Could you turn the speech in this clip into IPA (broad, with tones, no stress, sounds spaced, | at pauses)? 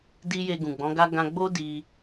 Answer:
d i˦ j e˧ ɡ ũ˨ ɡ͡b ɔ̃˨˦ ɡ a˦ ɡ ã˧ ɡ͡b o˦ d i˧